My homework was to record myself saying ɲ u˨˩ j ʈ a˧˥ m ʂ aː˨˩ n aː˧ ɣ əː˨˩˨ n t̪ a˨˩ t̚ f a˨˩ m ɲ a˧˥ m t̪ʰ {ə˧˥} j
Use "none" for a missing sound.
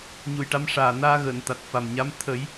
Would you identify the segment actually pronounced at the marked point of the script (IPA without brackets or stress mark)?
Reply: ə˨˩˦